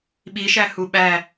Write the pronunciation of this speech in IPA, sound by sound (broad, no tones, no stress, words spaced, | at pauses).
ɓiʃæ huɓæ